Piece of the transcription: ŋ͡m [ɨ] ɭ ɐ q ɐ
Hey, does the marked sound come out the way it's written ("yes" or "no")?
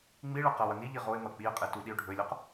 no